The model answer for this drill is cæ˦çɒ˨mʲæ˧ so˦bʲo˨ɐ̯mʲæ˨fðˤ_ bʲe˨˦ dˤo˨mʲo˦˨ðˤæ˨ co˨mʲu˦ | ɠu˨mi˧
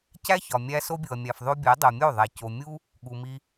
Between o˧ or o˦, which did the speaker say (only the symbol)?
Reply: o˦